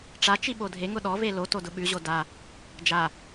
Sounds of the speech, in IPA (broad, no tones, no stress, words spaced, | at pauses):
ʈ͡ʂat͡ʃi ɓodʱeŋʊ ɗɔve loto dʊɓʉʑo da | d͡ʒa